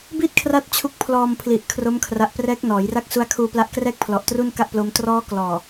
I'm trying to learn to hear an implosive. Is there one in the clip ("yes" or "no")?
no